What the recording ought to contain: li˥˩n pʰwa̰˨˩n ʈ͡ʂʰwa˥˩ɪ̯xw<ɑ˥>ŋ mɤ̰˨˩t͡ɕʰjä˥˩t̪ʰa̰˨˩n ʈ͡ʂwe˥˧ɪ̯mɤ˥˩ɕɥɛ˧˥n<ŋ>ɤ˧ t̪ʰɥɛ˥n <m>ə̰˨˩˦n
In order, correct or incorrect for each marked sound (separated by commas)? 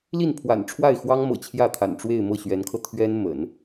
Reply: correct, incorrect, correct